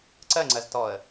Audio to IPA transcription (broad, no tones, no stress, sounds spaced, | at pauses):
ǀ ɜ ŋ͡ǀ ɜ z t ɔ ə̯